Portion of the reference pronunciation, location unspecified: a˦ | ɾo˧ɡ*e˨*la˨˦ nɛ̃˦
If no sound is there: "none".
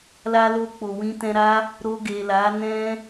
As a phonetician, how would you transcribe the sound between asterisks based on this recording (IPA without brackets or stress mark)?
e˨